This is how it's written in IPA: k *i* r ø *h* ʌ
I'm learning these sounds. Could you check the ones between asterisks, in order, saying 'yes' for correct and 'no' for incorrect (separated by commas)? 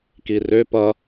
yes, no